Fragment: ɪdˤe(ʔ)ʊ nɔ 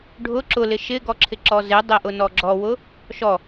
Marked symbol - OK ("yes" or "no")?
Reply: yes